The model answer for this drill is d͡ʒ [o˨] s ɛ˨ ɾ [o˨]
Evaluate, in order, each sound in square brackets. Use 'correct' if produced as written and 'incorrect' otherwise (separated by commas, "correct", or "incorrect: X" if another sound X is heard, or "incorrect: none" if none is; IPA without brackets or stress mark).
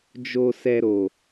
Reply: correct, correct